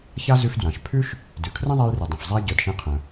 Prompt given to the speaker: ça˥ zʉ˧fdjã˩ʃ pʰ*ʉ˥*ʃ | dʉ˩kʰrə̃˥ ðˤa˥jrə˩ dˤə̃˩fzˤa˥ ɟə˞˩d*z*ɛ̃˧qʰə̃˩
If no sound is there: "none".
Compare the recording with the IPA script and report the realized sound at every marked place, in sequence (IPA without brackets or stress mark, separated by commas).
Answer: ʉ˥, ʃ